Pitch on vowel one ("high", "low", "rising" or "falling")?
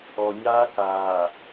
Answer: low